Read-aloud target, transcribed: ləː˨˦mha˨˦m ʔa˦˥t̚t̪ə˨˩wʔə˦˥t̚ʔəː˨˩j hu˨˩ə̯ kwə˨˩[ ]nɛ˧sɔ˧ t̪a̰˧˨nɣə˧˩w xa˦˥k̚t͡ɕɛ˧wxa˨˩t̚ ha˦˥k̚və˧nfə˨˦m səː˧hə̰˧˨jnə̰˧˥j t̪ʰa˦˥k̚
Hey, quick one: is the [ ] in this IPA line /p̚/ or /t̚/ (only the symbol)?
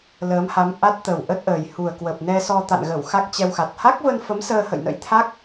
p̚